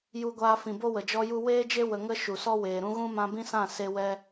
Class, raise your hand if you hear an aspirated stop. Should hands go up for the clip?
no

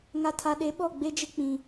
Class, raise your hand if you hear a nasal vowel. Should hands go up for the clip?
yes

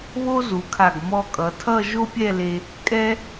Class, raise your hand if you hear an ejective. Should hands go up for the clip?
yes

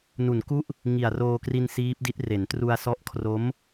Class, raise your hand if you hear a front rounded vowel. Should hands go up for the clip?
no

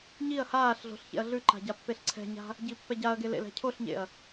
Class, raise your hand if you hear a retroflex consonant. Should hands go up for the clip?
no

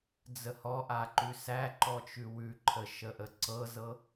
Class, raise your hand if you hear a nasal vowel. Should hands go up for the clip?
no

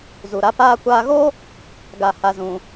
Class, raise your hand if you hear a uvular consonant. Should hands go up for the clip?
no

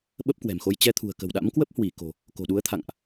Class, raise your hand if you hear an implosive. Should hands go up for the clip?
yes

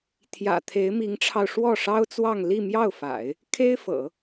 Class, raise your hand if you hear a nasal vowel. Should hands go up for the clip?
no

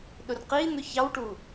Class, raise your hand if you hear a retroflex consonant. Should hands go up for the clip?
yes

